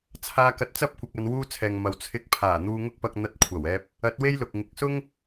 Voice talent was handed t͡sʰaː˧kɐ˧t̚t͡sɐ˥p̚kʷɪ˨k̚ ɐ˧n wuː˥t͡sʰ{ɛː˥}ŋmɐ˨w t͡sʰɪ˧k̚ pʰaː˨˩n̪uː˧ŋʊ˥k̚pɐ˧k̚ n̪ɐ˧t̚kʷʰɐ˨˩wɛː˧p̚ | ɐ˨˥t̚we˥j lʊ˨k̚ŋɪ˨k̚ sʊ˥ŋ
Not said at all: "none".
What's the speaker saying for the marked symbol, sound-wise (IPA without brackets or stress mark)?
ɛː˨